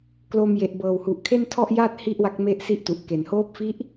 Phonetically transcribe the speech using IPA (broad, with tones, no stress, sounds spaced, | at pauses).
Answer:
k l o˧ m j e˨˩ ʔ b ɤː˨˩ w h u˨˩ ʔ kʰ e˥˩ n tʰ ɔ˥˩ ʔ j aː˥˩ t̚ h i˥˩ ʔ w a˦˥ k̚ m e˥˩ ʔ s i˥˩ ʔ t u˨˩ ʔ k e˨˩ n h oː˦˥ p̚ f i˦˥ ʔ